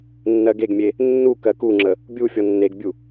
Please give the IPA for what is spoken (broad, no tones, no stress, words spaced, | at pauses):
nːɜɡeɡmʲe | nːu kɜkuŋ͡ǁə | bʲu fʲɔnːeɡbʲu